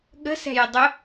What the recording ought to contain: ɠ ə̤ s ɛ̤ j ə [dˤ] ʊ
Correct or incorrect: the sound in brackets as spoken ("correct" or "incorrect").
correct